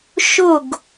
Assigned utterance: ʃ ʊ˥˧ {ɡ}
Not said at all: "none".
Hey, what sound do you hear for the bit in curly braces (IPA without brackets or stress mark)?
ɡ